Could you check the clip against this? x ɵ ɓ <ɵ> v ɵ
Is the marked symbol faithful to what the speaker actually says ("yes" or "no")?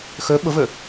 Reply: no